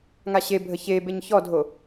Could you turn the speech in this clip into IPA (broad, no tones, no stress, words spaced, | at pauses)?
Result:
ŋaɕebʱə çe beɲçɔdʱo